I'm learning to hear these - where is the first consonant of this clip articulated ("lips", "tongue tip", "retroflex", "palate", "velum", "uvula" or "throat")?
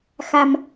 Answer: velum